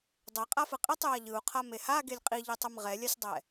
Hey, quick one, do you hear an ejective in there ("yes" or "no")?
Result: yes